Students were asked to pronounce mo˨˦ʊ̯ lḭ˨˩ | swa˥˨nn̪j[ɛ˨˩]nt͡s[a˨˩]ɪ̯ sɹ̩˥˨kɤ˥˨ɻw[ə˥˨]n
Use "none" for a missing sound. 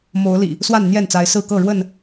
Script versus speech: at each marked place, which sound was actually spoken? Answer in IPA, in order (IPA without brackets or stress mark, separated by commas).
ɛ˥˨, a˨˦, ə˥˨